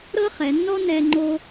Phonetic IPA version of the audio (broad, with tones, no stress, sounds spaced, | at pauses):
ɾ ɤ˥ χ ɛ˩˧ nː ɔ˥ n ɛ˧ ŋ͡ǃ o˧